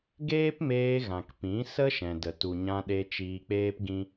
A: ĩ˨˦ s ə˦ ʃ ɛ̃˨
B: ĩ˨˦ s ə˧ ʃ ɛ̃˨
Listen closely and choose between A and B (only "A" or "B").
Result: A